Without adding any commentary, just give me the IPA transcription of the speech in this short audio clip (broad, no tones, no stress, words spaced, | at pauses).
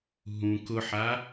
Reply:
ɦũ kʊħa